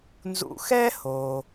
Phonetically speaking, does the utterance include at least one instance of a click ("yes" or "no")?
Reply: no